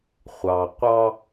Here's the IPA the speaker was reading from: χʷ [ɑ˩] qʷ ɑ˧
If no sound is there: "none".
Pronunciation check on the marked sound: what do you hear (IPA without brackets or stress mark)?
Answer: ɑ˩